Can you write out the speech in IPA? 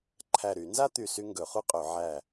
ǃʰ æ˧˩ ɾ y˧˩˧ n z a˥ t̪ y˥˩ s y˥ ŋ ɡ ɵ˧˩˧ χ u˥ qʼ ɵ˧˩˧ ʕ æ˧˩

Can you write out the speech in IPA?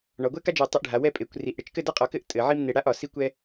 ɳ ɒ˩˧ ɡʷ ɛ˥ k a˥ d͡ʒ e˧˩ tˤ i˧ ʔ ɖʱ a˩˧ w ɛ˥˧ pʼ e˩˧ kʷ r i˧˩ ʔ ɽ e˥ t͡ʃ k ɘ˥˧ d a˥ qʼ ɒ˧˩ k ɘ˥˧ ʔ tʼ ɘ˩˧ ʕ i˥ m n e˧ ɽ a˥ ʔ ɒ˩˧ s i˥ kʷ ɛ˥

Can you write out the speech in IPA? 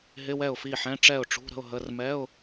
ɦ ɪ˧˥˧ w ɛ˥˩ ʊ̯ f i˥˩ ħ ɛ̃˧˥˧ ʈ͡ʂ ɛ˥˩ ʊ̯ ʈ͡ʂ ṳ˧˥˧ ɾ ə̤˧˥˧ ʊ̯ ɦ ə˧˥˧ r m ɛ˧˥˧ ʊ̯

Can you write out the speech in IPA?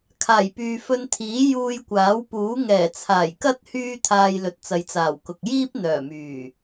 kʰ aː˨˩ j p yː˨ f ɵ˧ n t̪ʰ iː˨˥ j uː˧ j kʷ aː˨˥ w p uː˨˥ ŋ ɛː˨˩ t͡sʰ aː˨˩ j k ɐ˥ t̚ h yː˥ t̪ʰ aː˧ j l ɵ˨ t̚ t͡s ɐ˨ j t͡s aː˨˩ w k ʊ˨ k̚ j iː˥ p̚ n̪ œː˨˩ m yː˨˩

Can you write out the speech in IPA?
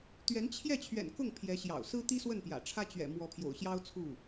t̪ ɥ ɛ˧˥ n t͡ɕʰ j ɛ˥˩ t͡ɕʰ ɥ ɛ̰˨˩ n k ʊ˥˩ ŋ pʰ j ɛ˧˥ ɕ j ɑ̰˨˩ ʊ̯ s ɹ̩˥ t̪ i˥ s w ə˥˩ n p j ä̰˨˩ ʈ͡ʂʰ ä˥ t͡ɕ ɥ ɛ̰˨˩ m w ɔ˧˥ pʰ j o̰˨˩ ʊ̯ ɕ j ɑ˥ ʊ̯ t͡sʰ u˥˩

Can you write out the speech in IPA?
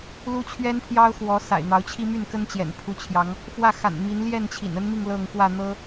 l u˦ t͡ɕʰ ɥ ɛ˦ n pʰ j ɑ˦ ʊ̯ x w ɔ˨˦ s a̰˨˩ ɪ̯ n̪ ɑ˨˦ ʊ̯ t͡ɕʰ i˦ m y˥˨ n k ə˦ n t͡ɕ j ɛ̰˨˩ n pʰ u˨˦ t͡ɕʰ j ɑ˨˦ ŋ | f w ä˥˨ x a̰˨˩ n m i˨˦ n l j ɛ˥˨ n t͡ɕʰ ḭ˨˩ n ə˦ n m i˥˨ ŋ l ɤ˥˨ ŋ k w ä˥˨ n̪ ɤ˦

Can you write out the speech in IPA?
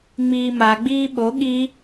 ŋ͡m iː m a ɡ͡b iː ɓ o ɠ i

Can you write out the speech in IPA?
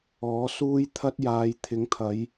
ɔː˨˥ s uː˥ j t̪ʰ ɐ˥ t̚ j aː˨˧ j t̪ʰ ɪ˨˥ ŋ t̪ʰ ɐ˨˧ j

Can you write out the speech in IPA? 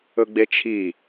ɵ ɡ͡b e t͡ʃʰ i

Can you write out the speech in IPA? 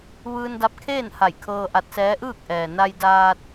ʋ ɯː˧ n d a˧ p̚ kʰ eː˥˨ n h a˧˩ j kʰ ɤː˧ ʔ a˧ t̚ s ɛː˧˥ ʔ ɯː˥˨ k̚ ʔ ɛː˩ n a˧ j d aː˧ t̚

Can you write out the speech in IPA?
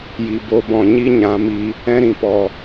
j i˨ b o˨ b ɔ̃˨ ɲ i˦ ɲ ã˨˦ m i˧ | ɛ̃˦ ɾ ĩ˨ p ɔ˧

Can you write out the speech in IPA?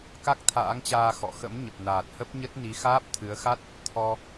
k a˦˥ k̚ t̪ʰ a̰ː˧˥ ŋ t͡ɕ aː˧ x ɔ̰˧˨ x ə̰˧˥ m ɲ ə˨˩ p̚ n aː˨˩ t̚ h ə˦˥ p̚ ɲ ə˦˥ t̚ n i˨˦ x aː˦˥ p̚ t̪ʰ ɨ˨˦ ə̯ x a˦˥ t̚ | t̪ʰ ɔ˧

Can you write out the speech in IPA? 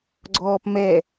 ɡ͡ǀ ɔː p m ɛ

